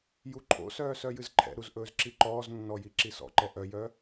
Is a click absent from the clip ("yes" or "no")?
no